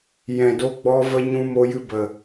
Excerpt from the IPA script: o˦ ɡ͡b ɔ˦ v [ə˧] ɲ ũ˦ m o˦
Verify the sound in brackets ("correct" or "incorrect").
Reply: incorrect